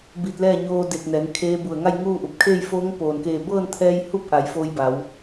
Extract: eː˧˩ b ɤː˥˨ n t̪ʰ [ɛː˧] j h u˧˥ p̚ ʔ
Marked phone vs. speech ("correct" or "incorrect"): correct